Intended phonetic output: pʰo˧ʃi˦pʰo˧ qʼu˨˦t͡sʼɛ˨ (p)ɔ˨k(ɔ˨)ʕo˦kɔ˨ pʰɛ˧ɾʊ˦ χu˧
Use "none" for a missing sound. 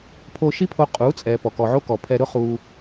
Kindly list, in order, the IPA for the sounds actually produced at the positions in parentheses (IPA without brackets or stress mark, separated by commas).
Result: p, ɔ˨